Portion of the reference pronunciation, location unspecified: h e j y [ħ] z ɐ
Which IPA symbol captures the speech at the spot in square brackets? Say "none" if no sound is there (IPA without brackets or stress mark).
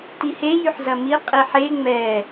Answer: ħ